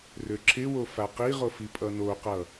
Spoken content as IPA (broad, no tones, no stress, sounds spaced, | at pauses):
r ø ǁʰ ɪ w o f a q i ʁ o f i pʼ ʌ n o q ʌ